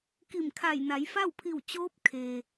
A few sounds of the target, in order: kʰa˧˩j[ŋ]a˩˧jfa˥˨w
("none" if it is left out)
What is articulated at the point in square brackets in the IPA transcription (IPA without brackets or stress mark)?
n